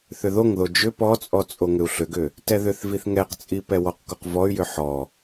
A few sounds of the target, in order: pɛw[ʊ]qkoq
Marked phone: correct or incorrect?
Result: incorrect